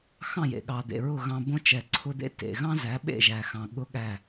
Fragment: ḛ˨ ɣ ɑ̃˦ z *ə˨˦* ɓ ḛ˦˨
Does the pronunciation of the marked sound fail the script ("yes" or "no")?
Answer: yes